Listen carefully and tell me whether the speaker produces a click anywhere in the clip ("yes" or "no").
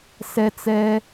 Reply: no